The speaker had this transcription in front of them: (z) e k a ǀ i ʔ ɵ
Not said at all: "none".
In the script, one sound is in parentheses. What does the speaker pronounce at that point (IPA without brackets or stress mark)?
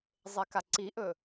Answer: zˤ